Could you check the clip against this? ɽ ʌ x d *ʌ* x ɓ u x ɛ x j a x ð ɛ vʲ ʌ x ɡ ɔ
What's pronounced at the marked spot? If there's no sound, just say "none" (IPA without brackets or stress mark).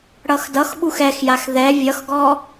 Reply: ʌ